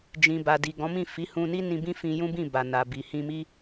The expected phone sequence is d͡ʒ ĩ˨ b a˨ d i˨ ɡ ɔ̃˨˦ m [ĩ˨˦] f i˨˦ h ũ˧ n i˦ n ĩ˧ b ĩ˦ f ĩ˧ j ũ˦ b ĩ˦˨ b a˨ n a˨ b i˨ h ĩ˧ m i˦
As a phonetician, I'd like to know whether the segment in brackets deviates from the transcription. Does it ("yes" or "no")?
yes